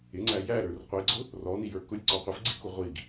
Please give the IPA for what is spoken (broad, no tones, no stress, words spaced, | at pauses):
ɪŋ͡ǀæ jæɾə˞r qʷiɡ͡ǀʊ | rɔnijə˞ kʊlʲǀɔ qʷɪfɡ͡ǀiku ʁʷiɡ